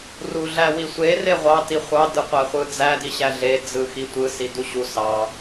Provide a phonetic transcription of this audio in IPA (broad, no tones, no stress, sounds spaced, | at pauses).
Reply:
r u ɮ æ w i sʷ e r e ʁʷ ɑ t i χʷ ɑ d ɯ qʷ æ χʷ ɯ d͡z æ d i ɕ æ ɮ e d͡z ɯ x i tʷ ɯ s i d u ɕ u s ɑ